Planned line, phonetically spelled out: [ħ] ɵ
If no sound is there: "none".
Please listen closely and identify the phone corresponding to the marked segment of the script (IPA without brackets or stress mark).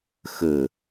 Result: x